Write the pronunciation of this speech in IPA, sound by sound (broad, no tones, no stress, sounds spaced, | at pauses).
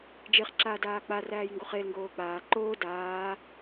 d͡ʒ e χ ǁ aː d aː k͡p a r æː j ŋ ɡ o χ e l ŋ ɡ oː k͡p aː ǃ oː d aː